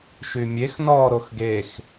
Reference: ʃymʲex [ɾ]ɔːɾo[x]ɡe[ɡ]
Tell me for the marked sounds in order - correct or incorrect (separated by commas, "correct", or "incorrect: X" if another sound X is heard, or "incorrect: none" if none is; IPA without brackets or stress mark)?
incorrect: n, correct, incorrect: x